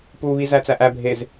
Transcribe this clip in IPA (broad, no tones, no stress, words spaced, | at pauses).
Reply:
puβi zæt͡sæʔæ bʱez